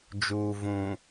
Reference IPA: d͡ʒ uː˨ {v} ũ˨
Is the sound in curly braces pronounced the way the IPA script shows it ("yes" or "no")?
yes